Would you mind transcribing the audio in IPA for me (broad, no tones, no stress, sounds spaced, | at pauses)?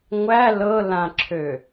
ŋʷ æ l ɤ l ã ǁʰ ø